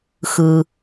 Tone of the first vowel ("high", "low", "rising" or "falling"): low